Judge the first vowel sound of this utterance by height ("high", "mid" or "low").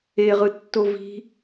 mid